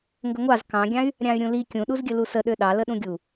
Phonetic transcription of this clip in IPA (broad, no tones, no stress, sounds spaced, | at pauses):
ŋ ɡ ə ŋʷ ɑ z k ɑ̃ ɡʲ ɑ̃ y̯ | ɾʲ ɑ̃ y̯ ɾʲ ũ l i kʲ ũ ɗ u z ɡʲ ə l u s ə ɗ ø ɗ ɑ l ə ɗ ũ ɡʲ u